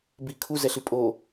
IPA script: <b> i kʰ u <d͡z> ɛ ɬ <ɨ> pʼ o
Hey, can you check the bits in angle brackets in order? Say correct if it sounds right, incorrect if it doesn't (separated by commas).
correct, incorrect, correct